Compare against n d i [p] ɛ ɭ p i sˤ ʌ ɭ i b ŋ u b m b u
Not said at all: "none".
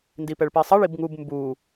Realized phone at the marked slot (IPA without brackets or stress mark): p